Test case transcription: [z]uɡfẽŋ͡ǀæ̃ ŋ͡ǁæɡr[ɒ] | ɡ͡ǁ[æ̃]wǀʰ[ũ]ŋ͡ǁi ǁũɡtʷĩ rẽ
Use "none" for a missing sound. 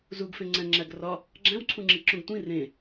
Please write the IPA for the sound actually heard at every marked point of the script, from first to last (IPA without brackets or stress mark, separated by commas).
z, ɒ, æ̃, ũ